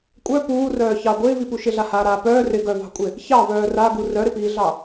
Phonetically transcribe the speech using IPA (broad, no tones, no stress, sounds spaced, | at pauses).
kʷʼ œ p uː r œː ç ɑ ɡʷ ɪː v i p u ʃ ɪ ɮ a h aː ɾ aː p œː r ɪ ɡ œ v ɑ̤ kʷʼ ɪ | ç ɑ v œː r a ɡ u r œ ɾ ɪ p iː ɮ ɑ